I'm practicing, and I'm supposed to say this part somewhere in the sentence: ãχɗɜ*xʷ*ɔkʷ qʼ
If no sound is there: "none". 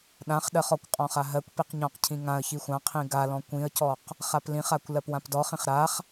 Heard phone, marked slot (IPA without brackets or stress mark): χ